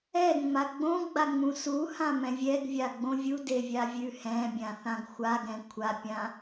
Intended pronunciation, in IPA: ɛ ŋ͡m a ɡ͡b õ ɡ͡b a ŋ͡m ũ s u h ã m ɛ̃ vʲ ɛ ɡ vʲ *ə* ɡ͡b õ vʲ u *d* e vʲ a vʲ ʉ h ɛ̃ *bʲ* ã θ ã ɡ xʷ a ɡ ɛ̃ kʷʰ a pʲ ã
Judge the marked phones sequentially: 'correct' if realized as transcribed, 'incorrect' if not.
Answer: incorrect: a, correct, correct

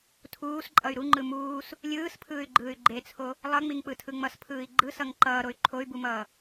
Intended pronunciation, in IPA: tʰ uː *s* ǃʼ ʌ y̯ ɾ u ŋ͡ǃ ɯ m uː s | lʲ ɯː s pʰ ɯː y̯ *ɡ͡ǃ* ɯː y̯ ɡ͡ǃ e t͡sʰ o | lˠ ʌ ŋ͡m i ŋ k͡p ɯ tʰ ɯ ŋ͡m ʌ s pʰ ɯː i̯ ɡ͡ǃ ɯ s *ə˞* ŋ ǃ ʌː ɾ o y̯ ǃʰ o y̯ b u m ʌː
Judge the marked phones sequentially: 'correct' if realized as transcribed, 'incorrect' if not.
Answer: correct, correct, incorrect: ʌ

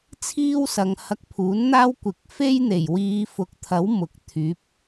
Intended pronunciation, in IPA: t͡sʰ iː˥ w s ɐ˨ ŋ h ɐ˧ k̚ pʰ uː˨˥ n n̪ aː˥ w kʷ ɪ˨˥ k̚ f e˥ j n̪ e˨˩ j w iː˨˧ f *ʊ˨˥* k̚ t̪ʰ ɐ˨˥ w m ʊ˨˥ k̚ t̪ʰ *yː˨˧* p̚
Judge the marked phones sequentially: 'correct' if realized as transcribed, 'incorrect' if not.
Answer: correct, incorrect: yː˨˥

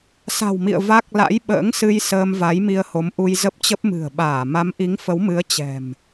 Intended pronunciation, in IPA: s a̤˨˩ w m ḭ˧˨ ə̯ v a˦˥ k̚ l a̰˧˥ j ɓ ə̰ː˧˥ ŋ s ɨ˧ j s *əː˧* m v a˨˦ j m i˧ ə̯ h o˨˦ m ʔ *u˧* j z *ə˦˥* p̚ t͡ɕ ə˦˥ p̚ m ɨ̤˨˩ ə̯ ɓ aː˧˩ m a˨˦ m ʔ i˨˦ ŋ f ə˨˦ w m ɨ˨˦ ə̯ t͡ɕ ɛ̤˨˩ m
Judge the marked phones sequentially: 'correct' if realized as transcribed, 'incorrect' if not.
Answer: correct, correct, correct

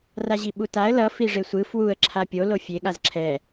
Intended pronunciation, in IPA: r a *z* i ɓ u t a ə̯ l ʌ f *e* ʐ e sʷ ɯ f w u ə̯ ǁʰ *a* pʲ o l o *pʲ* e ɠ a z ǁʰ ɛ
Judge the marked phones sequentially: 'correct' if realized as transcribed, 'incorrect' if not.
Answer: incorrect: ʑ, incorrect: i, correct, incorrect: fʲ

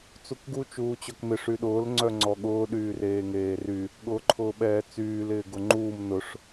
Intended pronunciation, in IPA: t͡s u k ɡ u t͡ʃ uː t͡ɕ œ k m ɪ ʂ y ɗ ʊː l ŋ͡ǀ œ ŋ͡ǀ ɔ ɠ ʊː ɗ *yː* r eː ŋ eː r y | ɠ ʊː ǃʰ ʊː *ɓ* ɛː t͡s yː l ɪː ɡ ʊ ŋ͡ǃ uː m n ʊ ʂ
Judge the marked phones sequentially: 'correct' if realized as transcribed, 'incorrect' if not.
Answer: correct, correct

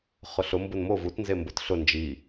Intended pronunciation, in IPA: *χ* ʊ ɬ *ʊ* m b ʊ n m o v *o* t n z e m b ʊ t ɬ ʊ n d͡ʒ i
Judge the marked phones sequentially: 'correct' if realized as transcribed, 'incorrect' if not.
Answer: correct, correct, incorrect: u

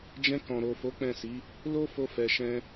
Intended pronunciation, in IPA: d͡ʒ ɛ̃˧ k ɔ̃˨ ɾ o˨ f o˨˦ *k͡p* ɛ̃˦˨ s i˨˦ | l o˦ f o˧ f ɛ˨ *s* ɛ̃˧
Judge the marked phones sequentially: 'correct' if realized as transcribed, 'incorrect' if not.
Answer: correct, incorrect: ʃ

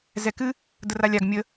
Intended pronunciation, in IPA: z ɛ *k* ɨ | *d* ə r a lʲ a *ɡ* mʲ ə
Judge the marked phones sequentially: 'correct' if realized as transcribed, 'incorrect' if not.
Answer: correct, correct, correct

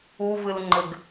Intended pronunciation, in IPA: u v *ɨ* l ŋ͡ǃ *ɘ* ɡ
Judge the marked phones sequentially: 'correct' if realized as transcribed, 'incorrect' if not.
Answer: correct, correct

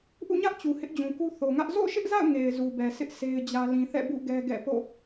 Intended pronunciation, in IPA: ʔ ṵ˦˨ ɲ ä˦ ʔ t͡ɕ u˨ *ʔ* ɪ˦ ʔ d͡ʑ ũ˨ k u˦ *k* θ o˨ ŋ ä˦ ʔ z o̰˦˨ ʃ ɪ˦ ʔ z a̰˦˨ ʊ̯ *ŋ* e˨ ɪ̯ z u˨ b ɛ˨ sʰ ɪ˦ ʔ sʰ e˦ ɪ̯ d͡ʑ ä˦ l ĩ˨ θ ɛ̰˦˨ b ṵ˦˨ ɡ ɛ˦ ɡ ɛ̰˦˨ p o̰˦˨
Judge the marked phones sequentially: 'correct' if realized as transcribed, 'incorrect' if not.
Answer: incorrect: h, incorrect: none, correct

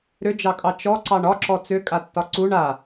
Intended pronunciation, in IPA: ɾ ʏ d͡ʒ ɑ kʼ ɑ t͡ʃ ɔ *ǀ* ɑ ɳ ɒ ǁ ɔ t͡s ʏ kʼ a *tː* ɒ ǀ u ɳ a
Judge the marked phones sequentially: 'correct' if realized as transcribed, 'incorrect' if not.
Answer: correct, correct

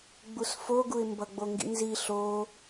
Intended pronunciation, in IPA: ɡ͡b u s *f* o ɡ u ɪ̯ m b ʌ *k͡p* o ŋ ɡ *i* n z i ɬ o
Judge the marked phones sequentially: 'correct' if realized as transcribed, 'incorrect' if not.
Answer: correct, incorrect: ɡ͡b, incorrect: ḭ

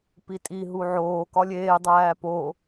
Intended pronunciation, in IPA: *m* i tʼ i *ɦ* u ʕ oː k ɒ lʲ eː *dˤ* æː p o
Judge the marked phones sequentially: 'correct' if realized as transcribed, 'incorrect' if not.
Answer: incorrect: p, correct, correct

